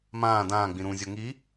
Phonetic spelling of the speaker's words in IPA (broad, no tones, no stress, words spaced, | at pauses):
mãː dãːɡ͡bĩ ɾũzʲo ŋi